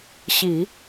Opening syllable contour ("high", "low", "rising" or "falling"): low